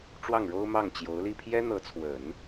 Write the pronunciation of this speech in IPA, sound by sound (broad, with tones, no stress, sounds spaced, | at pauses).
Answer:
ʈ͡ʂ w ɑ˥˩ ŋ ɻ o˥ ʊ̯ m ɑ˥˩ ŋ t͡ɕ j o˧˥ ʊ̯ l i˥˩ pʰ j ɛ˥ n̪ ɤ˧˥ t͡sʰ w ə˨˩˦ n